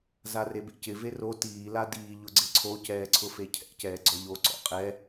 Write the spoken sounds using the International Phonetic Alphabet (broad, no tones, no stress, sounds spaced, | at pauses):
z a r e b ḛ c ɪ v e r o t iː l a d iː ʎ ʊ ɡ͡ǀ ɪ ǀʰ o c ɛː ǀʰ ʊ f e cʰ ɛ̰ c ɛː ɡ͡ǀ ɔ ʎ o ǀ ɔ̰ qʼ ɛ